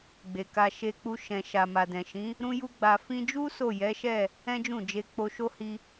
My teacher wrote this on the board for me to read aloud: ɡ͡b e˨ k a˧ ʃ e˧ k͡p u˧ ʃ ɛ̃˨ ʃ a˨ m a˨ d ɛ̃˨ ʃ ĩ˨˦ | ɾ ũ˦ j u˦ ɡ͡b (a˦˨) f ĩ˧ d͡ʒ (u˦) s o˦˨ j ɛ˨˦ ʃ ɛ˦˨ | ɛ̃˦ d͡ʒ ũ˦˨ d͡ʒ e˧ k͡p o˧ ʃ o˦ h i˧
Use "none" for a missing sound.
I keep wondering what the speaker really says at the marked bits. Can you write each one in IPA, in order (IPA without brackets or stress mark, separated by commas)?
a˧, u˦